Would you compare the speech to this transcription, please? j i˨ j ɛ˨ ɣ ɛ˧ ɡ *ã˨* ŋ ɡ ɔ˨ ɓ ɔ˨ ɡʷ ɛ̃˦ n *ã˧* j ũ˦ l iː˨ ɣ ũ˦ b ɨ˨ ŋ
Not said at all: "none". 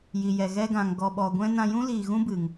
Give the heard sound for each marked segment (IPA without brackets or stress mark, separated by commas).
ã˨, ã˧